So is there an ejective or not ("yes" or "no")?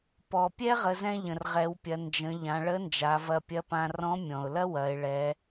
no